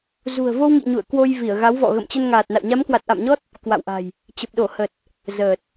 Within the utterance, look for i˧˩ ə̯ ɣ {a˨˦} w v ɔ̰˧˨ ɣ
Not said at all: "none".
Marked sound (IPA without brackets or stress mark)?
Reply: a˨˦